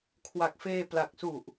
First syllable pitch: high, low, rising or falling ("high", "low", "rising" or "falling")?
low